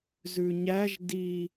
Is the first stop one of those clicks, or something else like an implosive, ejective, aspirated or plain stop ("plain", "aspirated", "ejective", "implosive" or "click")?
plain